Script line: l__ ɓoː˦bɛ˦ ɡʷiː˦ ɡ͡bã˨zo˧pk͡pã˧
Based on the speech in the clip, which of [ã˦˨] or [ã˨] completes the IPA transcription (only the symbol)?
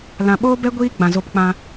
ã˨